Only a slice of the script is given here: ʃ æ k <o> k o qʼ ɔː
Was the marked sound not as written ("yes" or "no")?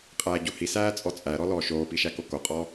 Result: no